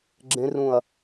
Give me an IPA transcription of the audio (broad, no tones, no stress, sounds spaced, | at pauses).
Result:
ɡ͡ǁ ẽ r ũ ɐ̯